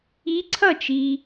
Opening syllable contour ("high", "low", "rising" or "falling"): rising